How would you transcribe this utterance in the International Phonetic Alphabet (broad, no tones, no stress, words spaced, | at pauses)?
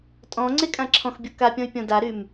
tʼɔ̃ ŋ͡ǀekʼãǁʰɔ̃xbʲo kapʲɔ̃y̯ pʲɔ̃daɾym